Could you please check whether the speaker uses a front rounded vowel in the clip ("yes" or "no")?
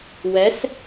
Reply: no